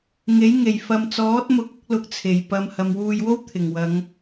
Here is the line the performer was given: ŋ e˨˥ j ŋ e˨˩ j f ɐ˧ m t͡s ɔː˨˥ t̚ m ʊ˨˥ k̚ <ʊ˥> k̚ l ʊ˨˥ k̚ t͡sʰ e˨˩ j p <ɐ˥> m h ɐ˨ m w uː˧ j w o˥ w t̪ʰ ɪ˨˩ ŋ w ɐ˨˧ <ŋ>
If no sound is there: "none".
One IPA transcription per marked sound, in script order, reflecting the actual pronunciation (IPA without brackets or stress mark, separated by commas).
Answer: ʊ˥, ɐ˧, ŋ